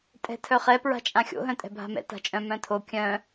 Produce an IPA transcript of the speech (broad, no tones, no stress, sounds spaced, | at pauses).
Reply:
tʼ ɛ̤ tʰ œ χ ɛ p ɹ a̤ t͡ʃʼ ã xʲ o̰ ɦ œ̃ tʼ ɛ̤ bʱ a̤ m ɛ̰ t a̤ t͡ʃʼ œ̃ m œ̃ tʰ o kʲ œ̃